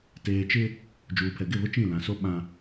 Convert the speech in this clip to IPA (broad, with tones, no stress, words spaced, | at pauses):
teː˨t͡ʃɪ˦ | d͡ʒuː˨pʰɛ˨ɡɪ˦˨βʊ˦ t͡ʃĩ˦˨lã˨so˦ ɓã˦